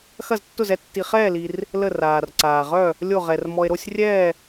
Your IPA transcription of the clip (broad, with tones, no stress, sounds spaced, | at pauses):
x ɐ˥˧ z tː ʊ˥˧ z ɛ˥˧ tː i˧ χ ɛː˥˧ l i˧ r | l ə˥˧ r aː˧ r ǀ aː˧ ʁ œ˥˧ | lʲ o˥˧ ʁ ɛ˧ r m ɔ˧ e̯ ɾ o˥˧ sʲ rʲ ɛː˥˧